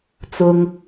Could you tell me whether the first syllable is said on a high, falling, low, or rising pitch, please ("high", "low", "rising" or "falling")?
low